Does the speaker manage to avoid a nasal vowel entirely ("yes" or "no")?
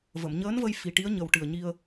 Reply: yes